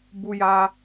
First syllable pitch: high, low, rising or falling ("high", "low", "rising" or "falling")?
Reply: high